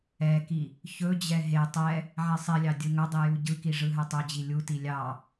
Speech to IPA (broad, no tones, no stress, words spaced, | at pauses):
ɛki | çɵd͡ʑɛ ɦe tˤɛ | ʕɛsˤilʲɑ dʲɯŋɵdˤi juɟɯki ʐɯɦɛtˤɵd͡ʑi lʲuti lʲɑ